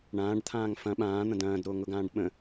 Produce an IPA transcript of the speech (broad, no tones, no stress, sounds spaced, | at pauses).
ɳ ãː ɖ t̪ʰ ãː ŋ f ɐ̃ ɓ ãː n̪ ɐ̃ d ɐ̃ː d ɾ o ŋ ʊ ɡ ãː ɖ ɓ ə̃